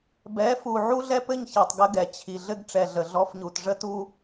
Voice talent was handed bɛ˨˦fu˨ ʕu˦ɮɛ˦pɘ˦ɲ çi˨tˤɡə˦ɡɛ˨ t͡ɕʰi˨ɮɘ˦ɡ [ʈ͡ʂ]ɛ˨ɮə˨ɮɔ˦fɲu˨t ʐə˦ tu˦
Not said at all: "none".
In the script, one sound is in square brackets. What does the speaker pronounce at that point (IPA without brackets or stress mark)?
ʈ͡ʂ